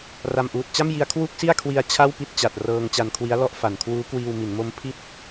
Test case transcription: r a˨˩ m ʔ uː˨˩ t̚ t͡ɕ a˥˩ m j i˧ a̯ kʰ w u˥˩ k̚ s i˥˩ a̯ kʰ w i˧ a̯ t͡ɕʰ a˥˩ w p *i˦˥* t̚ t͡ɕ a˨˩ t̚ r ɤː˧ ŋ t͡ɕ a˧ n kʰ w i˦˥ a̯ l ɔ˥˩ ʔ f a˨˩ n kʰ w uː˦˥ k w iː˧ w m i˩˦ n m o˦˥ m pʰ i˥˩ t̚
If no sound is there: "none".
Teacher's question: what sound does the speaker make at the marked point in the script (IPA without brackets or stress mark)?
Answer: i˥˩